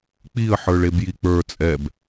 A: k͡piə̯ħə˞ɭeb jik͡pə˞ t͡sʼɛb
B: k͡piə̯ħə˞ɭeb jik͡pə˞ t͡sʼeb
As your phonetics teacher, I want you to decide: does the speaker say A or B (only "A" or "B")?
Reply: A